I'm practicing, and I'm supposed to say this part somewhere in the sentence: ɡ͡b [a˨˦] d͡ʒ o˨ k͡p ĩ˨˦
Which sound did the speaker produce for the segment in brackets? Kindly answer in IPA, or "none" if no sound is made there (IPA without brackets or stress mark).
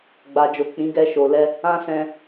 a˨